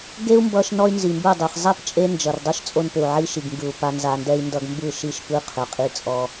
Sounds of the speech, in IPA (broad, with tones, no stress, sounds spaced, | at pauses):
ɡ e˦ u̯ m b ʌ˧ ʃ n ɔ˦ y̯ n z i˨ m b ɯ˦˨ dˤ i˨ χ zˤ ɛ˦˨ p t͡ʃʼ e˦ n d͡ʒ ʌ˨ r dˤ ɯ˦ ʃ t͡sʼ o˧ n p ʏ˨ u̯ ʕ i˧ ʃ i˨ ɡ ŋ ɡ ɯ˨ u̯ p a˧ n z a˧ n d ɛ˦ i̯ n d ʌ˧ ɡ m b ɯ˦˨ ʃ i˦˨ ʃ p ɯ˦ qʰ ʏ˨ qʼ i˧ t͡sʼ ɔ˧